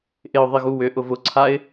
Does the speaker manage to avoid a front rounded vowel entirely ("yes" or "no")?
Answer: no